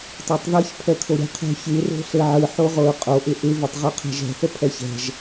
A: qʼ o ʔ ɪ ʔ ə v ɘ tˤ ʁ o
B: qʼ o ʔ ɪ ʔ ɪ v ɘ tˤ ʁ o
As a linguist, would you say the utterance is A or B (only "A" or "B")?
B